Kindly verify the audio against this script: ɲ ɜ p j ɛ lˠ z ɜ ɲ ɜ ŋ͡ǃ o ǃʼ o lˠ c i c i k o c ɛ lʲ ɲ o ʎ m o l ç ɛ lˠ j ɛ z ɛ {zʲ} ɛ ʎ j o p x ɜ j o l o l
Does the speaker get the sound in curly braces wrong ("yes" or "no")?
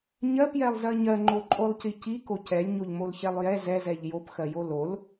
yes